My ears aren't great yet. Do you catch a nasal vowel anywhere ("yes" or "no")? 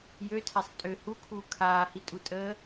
no